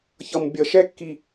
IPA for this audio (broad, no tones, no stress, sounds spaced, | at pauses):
ç ʌ m bʲ ʌ ʃ ɛ kː i